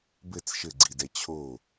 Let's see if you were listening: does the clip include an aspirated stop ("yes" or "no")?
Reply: yes